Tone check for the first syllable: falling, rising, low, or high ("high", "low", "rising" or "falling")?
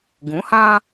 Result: rising